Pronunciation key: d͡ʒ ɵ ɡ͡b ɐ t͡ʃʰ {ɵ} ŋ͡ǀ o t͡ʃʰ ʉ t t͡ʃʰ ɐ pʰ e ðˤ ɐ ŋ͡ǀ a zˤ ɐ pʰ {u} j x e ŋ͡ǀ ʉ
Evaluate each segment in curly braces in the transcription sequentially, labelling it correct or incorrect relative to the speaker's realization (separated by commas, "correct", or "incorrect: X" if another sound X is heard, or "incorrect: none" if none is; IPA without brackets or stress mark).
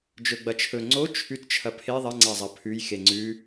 correct, incorrect: ʉ